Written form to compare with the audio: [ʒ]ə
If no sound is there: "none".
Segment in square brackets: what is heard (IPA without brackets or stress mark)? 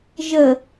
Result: ʒ